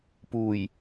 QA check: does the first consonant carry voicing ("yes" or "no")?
no